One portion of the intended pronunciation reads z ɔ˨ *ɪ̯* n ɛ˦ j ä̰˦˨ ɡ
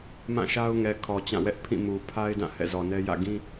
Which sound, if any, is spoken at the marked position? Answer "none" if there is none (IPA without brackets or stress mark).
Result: none